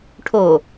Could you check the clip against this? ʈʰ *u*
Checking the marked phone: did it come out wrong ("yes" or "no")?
yes